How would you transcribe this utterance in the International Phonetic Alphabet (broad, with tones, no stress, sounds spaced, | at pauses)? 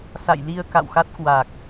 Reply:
s a̰˧˨ j l i˧ ə̯ k a̰˧˨ w x a˦˥ t̚ k w a˨˩ k̚